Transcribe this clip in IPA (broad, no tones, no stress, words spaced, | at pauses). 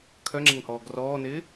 kʰœŋ͡ǁɛŋhɔːɡ rɔːnɪː